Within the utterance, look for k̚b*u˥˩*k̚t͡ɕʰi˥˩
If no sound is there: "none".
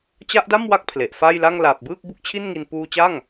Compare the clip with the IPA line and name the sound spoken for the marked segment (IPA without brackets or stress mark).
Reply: u˥˩